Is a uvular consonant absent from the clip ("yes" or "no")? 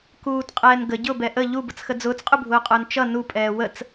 no